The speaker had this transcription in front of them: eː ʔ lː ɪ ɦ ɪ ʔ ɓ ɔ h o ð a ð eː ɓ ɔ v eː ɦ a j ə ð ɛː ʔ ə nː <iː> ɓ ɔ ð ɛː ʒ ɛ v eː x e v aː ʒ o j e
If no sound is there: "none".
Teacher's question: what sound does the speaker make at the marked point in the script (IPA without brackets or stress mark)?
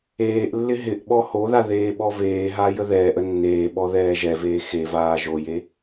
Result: eː